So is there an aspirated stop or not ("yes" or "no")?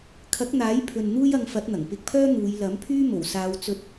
yes